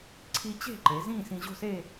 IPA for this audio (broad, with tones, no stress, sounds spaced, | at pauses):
ǀʰ i˧ t͡ɕ e̤˥˧ ǃ e˩˧ z ĩː˥˧ s ĩ˧ ʑ o̤˥˧ s e˥˧